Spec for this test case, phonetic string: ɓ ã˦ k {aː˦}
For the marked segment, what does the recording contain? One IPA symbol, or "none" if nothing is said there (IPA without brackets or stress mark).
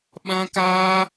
aː˦